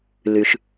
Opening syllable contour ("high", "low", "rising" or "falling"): low